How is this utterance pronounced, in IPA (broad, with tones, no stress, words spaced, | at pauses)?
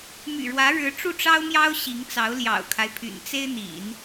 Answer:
my̰˨˩ɻwä˧˥ɻɻ̩˧˥ ʈ͡ʂu˥˩ʈ͡ʂɑ˥ʊ̯mjɑ˥ʊ̯ ɕi˧˥ŋt͡sɑ˧˥ʊ̯ ljɑ̰˨˩ʊ̯kʰa˦ɪ̯pʰy̰˨˩n t͡se˥ɪ̯n̪ḭ˨˩˦n